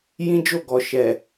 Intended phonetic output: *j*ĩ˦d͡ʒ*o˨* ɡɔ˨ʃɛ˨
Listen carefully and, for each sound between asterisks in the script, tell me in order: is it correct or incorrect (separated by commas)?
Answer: correct, incorrect